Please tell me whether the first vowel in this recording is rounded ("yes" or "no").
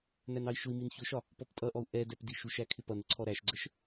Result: no